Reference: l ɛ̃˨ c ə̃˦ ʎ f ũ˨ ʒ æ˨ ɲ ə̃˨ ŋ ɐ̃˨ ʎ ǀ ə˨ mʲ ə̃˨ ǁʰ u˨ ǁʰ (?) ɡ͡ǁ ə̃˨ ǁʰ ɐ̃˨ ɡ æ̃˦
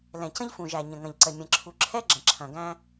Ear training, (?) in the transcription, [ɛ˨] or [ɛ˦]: ɛ˦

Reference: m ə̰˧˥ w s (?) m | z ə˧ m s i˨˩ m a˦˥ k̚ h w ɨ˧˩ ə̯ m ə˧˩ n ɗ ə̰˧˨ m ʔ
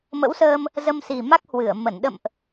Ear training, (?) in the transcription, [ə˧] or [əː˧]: əː˧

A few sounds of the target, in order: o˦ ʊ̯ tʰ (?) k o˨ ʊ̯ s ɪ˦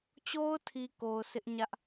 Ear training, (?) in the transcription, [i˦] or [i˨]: i˨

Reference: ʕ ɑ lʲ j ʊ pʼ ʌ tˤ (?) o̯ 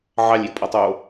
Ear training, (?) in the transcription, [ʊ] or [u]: u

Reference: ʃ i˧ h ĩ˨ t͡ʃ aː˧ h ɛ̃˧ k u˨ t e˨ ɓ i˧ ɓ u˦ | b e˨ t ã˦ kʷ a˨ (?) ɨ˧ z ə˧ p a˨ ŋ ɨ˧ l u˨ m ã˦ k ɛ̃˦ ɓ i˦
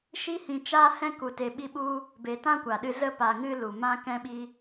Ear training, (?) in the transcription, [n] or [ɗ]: ɗ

